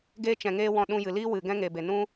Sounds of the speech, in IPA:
ɡ e˧ t͡ʃ ɛ̃˨ ŋ eː˧ w ɔ̃˧ ɗ ũ˧ j ɨ˨ l iː˦ w ɨ˨ ɡ ɛ̃˦ ŋ e˨ b e˨ n ũ˦

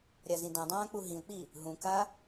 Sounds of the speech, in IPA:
ɾʲ a z ĩ d ã dˤ ãː k͡p u ɦ ĩ ʊ̯ k͡p i | ɦ ũ k a

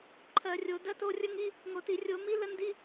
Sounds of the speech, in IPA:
ǃʰ ɜ˧˩˧ rʲ o˨˦ d ɜ˦˥ t o˧˥˧ rʲ ə˦˥ ŋ i˧˥˧ | ŋ o˧˩˧ t i˧˩˧ rʲ o˧˩˧ m i˦˥ l ə˦˥ n d i˧˥˧

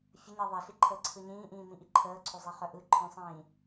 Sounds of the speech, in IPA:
fʲ ə ɲ e ðˤ e ɬ i ǃʰ əː ǀʰ ɯ ɲ ĩː ʔ ĩː m ĩ ʔ i ǃʰ əː ǀʰ o zˤ i χ œ ʔ ɯ ǃʰ œ̃ sˤ ĩː

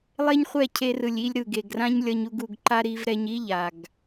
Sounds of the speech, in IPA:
lˠ e˦ ɲ χʷ ɛ˦˨ cʰ e˧ r ɯ˨ lʲ i˧ lʲ ɾ ɯ˨ ɡ e˨ ɡ r ã˦ ɲ lʲ ʌ˧ ɲ u˧ ɡ u˧ ɡ ǃ a˦ ɾ i˧ v ɾ ɛ˧ ɲ i˦ ʎ a˨ ɡ

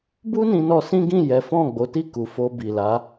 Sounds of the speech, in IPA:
b u˦ n ĩ˧ n ɔ˧ s ĩ˦ ɡ ĩ˦˨ j ɛ˨˦ f ɔ̃˦˨ ɡ͡b o˨˦ t i˦˨ k u˨ f o˧ b i˨ l a˨˦

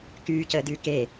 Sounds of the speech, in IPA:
k yː c əː d yː k e

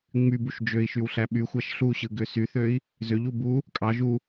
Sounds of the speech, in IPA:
ŋ͡m y b u ʃ d͡ʒ ø i̯ ʃ y w ɬ æ ɓ y xʷ æ ʃ ɬ u ɕ ɯ ɡ ø s y θ ø i̯ | z ø ʎ u b u | kʼ ɑ ʒ u

